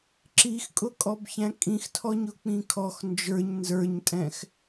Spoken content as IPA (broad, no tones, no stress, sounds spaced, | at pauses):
ǁ i x kʼ ʊ kʼ ɔ b ç æ̃ kʼ ĩ x tʰ ɔ ɲ ʊ k͡p ĩ kʰ ɔ x n d͡ʒ ə˞ ɲ n z ə˞ ɲ tʼ ɛ̃ x